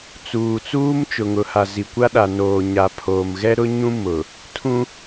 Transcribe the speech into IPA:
t͡s uː˨ t͡s uː˦ m t͡ʃ ʊ˨ ŋ ʊ˨ h a˨ z i˨ kʷ a˦ ɗ a˨ n oː˨ ɲ a˨ pʰ oː˨ m ɣ ɛ˦ ɾ ʊ˦ ɲ ũ˦ m ʊ˨ | tʰ ũ˦

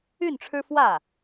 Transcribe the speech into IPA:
y˥˩ n ʈ͡ʂʰ ɻ̩˥ f w ä˥˩

